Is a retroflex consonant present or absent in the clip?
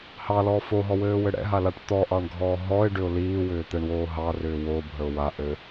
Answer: present